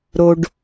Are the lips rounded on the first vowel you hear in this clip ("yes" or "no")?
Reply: yes